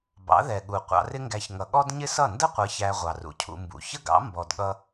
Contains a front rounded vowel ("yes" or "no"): no